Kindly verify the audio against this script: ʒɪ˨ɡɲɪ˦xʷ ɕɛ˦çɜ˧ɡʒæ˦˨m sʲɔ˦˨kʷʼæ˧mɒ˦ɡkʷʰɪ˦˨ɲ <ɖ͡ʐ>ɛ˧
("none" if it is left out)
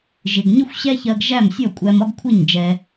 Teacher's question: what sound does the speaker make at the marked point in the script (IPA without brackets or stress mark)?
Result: d͡ʒ